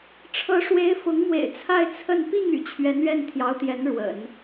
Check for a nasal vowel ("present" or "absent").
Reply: absent